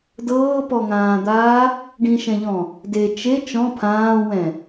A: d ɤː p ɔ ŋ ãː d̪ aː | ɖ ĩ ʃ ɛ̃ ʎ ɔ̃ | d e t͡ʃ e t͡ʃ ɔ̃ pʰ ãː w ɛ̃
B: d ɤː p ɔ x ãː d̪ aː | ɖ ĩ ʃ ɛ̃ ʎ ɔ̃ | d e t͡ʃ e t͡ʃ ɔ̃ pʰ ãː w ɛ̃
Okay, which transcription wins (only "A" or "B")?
A